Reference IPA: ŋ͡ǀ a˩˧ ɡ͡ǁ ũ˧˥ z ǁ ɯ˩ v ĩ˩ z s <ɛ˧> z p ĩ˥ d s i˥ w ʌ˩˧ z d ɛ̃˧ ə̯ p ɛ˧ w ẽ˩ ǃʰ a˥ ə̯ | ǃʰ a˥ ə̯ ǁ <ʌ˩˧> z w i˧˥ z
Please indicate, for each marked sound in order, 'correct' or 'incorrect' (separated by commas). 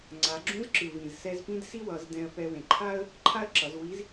correct, correct